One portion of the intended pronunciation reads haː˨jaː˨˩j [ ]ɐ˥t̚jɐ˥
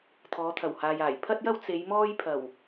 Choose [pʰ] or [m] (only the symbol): pʰ